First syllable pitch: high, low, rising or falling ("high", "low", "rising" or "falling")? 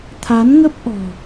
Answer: rising